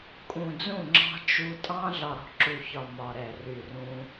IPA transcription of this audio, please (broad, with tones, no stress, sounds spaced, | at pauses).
kʼ ũ˨ d͡z ũ˦˨ ŋ͡ǁ ɑ̤˦ t͡ʃ u˧ tʼ ɑ̃˦ ɮ ɒ˨ ɾ ɔ̤˧ ǁ u˨ ç ɒ˨ m ɒ˨ ɾ ɛ˨ r y˨ r ũ˧